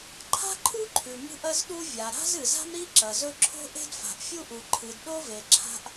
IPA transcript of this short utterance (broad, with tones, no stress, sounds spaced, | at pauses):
ǃʰ a̤˥ ǃʰ u˥ ǃʰ ʉ˩ m ṳ˥ ʔ ɐ˥ z ɗ u˥ vʲ a˩ ɾ a̤˥ z ɨ˩ z a̤˥ m ɾ i˥ ǁ ɐ˩ z ɵ˥ ǁʰ o̤˥ ʔ e̤˥ d f a̤˩ ʔ fʲ u˥ ʔ u˩ ǃʰ ɨ˩ d ɗ o˥ v e˩ ǁʰ a̤˥ ʔ